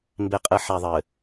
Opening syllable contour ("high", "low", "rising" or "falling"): low